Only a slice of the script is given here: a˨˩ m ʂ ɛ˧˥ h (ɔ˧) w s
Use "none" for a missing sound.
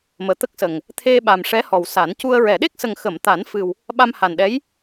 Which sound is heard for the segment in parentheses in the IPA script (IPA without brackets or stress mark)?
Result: ɔ˨˩